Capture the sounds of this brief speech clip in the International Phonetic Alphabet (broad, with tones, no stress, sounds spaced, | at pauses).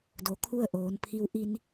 d o˩ kʰ u˥˨ ə̯ ʔ oː˩˧ n pʰ i˧ w ʔ i˧ n